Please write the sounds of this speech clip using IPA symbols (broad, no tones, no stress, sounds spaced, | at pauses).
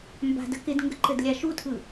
m b a̤ d ə k ɪ d ŋ ɡ ə̤ ǃ ɘ d lʲ a ʃ u tʰ ɯ